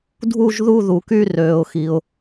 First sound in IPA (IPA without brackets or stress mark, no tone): dʱ